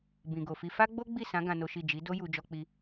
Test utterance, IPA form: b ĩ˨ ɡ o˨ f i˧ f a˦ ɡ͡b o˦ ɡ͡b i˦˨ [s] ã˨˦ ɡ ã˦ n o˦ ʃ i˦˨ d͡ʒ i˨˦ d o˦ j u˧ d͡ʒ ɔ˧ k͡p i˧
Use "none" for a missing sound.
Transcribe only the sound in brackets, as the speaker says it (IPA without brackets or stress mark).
s